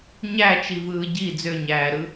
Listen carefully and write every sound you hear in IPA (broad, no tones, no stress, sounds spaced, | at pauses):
ɲ æ t͡ʃ i v ɯː ɟ i d͡z ø ɲ æː ɾ ɯ